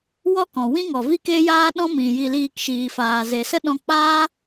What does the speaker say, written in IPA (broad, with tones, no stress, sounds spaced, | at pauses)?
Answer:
w ɔ˦ k ɔ̃˨ w ĩ˦ ŋ ɔ˨ v i˦ k e˦ j aː˦ ɗ ɔ̃˦ m ĩ˨ j i˧ l iː˧ k ʃ iː˨ f aː˨ z e˨ s ə˦ ɗ ɔ̃˧ k͡p aː˦